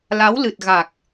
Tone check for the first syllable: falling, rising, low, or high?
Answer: rising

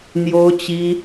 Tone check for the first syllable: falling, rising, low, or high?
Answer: high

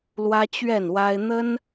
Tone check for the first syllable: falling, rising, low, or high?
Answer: high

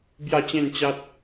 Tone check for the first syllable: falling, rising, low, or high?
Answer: falling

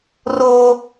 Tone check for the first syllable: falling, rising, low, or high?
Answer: high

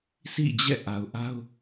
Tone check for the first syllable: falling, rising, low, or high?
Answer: falling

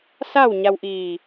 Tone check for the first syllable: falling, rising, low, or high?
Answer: falling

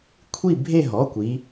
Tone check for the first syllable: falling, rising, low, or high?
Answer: falling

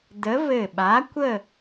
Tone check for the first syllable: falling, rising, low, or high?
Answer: rising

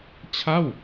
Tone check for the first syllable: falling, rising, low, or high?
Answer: falling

